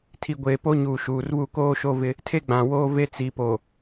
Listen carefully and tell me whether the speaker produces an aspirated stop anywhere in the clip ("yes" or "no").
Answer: yes